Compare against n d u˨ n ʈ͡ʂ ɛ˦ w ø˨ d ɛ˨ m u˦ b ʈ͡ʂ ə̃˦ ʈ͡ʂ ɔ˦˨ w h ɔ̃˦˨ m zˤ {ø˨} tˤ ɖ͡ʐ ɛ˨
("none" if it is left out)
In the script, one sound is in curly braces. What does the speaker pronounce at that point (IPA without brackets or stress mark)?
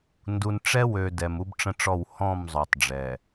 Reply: ø˨